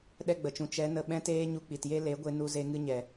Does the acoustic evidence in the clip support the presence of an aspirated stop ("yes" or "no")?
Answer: no